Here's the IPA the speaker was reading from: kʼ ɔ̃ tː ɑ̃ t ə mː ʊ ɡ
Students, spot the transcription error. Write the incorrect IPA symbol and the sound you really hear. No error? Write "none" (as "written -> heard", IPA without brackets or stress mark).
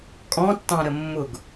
t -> ɾ